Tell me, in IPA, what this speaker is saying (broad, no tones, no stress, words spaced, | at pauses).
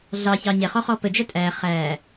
ɮɑçɑ ɲɛχɔχɔ pəd͡ʒæ tʼæ χæ